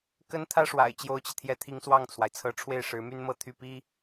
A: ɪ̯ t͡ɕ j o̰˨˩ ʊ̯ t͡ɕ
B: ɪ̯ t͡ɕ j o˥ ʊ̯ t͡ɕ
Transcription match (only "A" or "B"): B